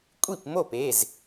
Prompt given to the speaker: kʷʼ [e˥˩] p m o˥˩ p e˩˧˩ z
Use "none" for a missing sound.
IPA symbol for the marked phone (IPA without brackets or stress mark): i˥˩